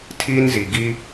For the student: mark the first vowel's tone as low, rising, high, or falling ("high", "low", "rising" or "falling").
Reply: high